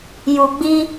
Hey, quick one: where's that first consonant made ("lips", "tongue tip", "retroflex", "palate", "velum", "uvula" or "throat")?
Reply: palate